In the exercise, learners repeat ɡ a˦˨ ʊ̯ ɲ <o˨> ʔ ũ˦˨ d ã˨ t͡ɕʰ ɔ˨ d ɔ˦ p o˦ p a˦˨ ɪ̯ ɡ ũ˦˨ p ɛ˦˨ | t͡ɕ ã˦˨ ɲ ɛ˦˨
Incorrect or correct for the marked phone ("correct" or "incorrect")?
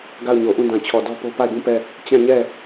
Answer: correct